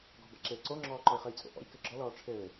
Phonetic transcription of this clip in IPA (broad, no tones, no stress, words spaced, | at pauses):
ɡɔ̤ba̰ǁeː ǀoŋ͡ǁɔːǃɔi̯ χɘjt͡sʼo̰ʔɔ̰j kɘɡ͡ǁɔ lɔːʈ͡ʂʰɘː